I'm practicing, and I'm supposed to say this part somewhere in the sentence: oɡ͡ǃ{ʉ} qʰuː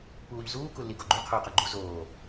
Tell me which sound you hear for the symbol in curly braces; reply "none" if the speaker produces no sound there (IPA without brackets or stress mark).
ʉ